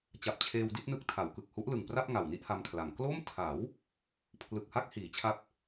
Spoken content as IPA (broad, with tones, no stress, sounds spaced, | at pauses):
t͡ɕ a˨˩ p̚ t͡ɕʰ eː˧ w d i˥˩ t̚ n ɯ˦˥ k̚ tʰ a˩˦ w k ɯ˨˩ k̚ h u˦˥ ʔ l ɯ˨˩ ŋ p r a˥˩ p̚ ŋ a˨˩ w n i˥˩ ʔ h a˧ m kʰ l a˩˦ ŋ k l o˥˩ m tʰ a˩˦ w | pʰ l ɯ˨˩ k̚ h a˥˩ k̚ h iː˩˦ t͡ɕʰ a˦˥ p̚